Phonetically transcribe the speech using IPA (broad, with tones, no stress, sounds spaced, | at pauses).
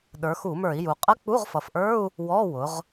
ɗ ə˞˩˧ x u˧˩˧ m ə˞˧˩˧ i̯ j u˩ qʼ ə˧˥˧ k͡p u˧˥˧ ʁ f ʌ˩ f ʔ ə˞˧˥˧ u̯ | w ɔ˧˥˧ w ʊ˩˧ ʁ